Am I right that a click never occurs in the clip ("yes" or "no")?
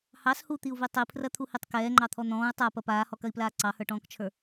no